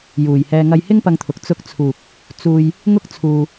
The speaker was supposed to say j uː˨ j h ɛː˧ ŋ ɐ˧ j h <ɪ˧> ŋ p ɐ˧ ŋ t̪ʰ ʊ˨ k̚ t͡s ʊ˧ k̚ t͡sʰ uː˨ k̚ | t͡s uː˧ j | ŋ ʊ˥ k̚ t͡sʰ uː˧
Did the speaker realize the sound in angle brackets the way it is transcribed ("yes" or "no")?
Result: no